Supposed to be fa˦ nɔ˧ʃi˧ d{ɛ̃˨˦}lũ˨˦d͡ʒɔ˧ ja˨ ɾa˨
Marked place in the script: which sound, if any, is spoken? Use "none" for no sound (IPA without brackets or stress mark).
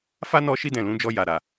ɛ̃˨